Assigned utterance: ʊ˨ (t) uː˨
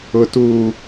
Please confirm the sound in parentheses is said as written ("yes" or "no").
yes